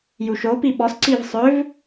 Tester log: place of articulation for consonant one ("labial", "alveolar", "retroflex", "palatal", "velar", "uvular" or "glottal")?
palatal